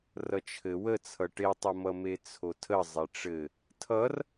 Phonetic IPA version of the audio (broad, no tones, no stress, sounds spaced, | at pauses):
r ʌ t͡ʃʰ ɘ w ə t͡sʰ ʌ ʈ e tˤ ʌ m ʌ m e t͡sʰ o tʰ ə zˤ e ʈ͡ʂ ɘ | tʰ ʌ r